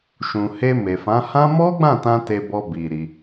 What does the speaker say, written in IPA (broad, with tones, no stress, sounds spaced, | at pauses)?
ʃ ũ˨ h e˧ m e˨ f ã˨˦ h ã˦ m ɔ˦ ɡ͡b ã˦˨ t ã˧ t e˧ b ɔ˧ b i˨ ɾ i˧